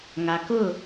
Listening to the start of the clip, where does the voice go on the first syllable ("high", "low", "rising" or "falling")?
low